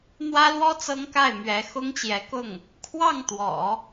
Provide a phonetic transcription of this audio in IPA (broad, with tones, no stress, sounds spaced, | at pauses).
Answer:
n̪ w ä˥ l w ɔ˥ t͡s ɤ˥ ŋ k a˥˩ ɪ̯ m ɥ ɛ˧˥ x ʊ˥ ŋ t͡ɕ j ɛ˧˥ k ʊ˥˩ ŋ | kʰ w ɑ˥˩ ŋ t̪ w ɔ̰˨˩˦